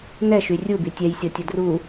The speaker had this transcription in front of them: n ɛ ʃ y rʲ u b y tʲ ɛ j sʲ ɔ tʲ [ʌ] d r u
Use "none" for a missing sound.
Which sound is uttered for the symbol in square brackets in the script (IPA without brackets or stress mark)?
ʌ